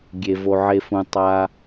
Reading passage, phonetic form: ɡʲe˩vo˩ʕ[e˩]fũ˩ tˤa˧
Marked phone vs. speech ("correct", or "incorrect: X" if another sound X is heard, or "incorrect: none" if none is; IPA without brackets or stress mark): correct